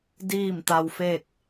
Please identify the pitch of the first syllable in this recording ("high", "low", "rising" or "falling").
falling